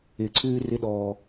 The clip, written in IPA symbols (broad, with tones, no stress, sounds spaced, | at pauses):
ɪː˧ ǀʰ ʉː˦ r ɪ˦ ɗ ɔː˧